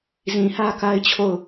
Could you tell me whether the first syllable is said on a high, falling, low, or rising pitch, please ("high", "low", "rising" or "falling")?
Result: low